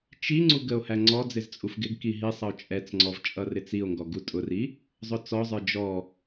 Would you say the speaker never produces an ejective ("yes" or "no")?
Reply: no